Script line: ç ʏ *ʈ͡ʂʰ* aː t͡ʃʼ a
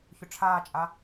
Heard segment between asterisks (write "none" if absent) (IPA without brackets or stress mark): ʈ͡ʂʰ